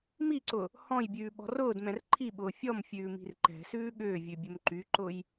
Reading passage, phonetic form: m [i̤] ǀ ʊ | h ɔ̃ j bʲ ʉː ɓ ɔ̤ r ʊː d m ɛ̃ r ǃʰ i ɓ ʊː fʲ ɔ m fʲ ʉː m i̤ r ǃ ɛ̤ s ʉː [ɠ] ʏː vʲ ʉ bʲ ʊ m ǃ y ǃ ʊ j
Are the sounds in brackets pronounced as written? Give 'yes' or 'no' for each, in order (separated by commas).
no, yes